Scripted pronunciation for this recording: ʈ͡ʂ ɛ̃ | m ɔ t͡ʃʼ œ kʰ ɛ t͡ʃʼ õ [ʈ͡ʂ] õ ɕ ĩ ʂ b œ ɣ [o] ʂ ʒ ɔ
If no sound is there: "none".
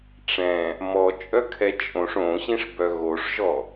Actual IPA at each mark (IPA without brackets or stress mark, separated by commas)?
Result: ʂ, o